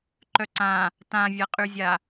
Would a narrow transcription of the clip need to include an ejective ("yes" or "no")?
yes